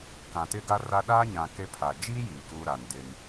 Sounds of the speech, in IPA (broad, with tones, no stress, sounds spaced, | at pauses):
k ã˨ t ɪ˦ ɡ a˦ r a˦ ɗ aː˦ ɲ ã˨ k e˦ pʰ a˨ d͡ʒ i˦ j iː˨ k uː˦ ɾ a˨ n d ɪ˦ n